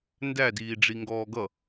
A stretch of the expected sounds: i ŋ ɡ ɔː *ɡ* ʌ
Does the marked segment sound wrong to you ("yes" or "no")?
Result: no